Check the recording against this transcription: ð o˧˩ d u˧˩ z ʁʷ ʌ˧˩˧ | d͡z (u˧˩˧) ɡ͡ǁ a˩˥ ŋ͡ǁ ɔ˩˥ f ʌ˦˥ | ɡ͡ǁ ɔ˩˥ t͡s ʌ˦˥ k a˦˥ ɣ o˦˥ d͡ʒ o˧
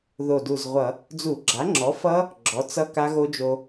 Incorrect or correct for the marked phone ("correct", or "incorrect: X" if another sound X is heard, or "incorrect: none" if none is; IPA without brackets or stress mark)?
correct